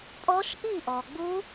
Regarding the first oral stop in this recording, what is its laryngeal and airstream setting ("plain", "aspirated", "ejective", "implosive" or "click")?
ejective